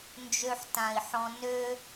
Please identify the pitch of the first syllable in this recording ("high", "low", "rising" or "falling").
low